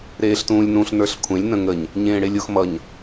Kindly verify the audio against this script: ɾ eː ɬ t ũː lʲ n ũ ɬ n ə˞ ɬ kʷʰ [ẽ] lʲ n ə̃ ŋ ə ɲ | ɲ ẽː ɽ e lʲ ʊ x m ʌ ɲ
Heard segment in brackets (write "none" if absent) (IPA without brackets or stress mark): ẽ